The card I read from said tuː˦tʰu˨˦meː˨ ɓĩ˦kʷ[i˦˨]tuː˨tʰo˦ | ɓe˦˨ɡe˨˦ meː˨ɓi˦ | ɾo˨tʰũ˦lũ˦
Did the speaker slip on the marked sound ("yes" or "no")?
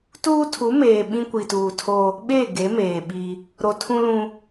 yes